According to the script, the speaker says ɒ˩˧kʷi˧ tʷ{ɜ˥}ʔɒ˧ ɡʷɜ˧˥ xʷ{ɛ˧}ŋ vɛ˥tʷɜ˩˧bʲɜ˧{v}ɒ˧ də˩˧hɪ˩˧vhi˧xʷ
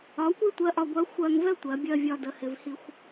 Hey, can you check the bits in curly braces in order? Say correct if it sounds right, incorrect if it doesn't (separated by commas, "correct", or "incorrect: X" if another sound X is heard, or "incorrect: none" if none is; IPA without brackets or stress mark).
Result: incorrect: ɜ˧˥, incorrect: ɜ˧, incorrect: vʲ